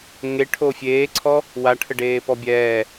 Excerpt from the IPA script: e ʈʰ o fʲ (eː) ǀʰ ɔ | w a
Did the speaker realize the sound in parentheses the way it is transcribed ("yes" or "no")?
yes